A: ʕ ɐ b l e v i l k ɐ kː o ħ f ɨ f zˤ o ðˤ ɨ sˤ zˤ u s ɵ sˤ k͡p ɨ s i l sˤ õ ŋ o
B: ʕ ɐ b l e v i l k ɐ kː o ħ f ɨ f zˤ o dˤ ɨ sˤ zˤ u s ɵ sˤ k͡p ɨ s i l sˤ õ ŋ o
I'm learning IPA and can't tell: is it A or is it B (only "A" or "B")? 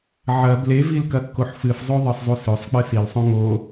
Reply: A